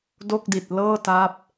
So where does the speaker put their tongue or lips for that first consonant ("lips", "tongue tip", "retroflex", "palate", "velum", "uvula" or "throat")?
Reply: tongue tip